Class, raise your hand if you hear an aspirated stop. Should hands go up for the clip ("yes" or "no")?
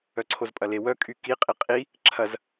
yes